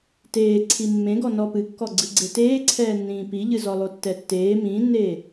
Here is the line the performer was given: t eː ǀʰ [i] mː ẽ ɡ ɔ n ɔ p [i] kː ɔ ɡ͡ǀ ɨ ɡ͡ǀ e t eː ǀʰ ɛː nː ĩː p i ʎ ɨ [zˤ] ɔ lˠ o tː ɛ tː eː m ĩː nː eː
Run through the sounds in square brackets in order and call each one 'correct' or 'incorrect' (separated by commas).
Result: correct, incorrect, incorrect